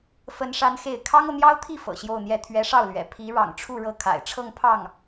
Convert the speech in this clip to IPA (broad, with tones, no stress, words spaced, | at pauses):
fə˥nʂa˥nxe˥˩ɪ̯ kʰɑ˥ŋɤ˨n̪jɑ˥ʊ̯t̪ʰi˥˩ fɤ̰˨˩ɕjo˥˧ʊ̯n̪jɛ˥˩ t̪ʰɥɛ˧˥ʂɑ˥˩ʊ̯lɥɛ̰˨˩ pʰi˧˥ ɻɑ̰˨˩ŋʈ͡ʂʰu˥˧ ɻɤ˥˩kʰa̰˨˩ɪ̯ʈ͡ʂʰɤ˥˧ŋ pʰɑ˥˩ŋ